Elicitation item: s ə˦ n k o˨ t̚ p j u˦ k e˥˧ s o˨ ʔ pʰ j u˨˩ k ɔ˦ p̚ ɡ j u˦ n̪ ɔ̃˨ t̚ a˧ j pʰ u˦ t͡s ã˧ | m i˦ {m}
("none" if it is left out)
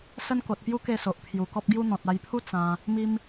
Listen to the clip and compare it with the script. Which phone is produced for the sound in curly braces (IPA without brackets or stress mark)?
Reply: m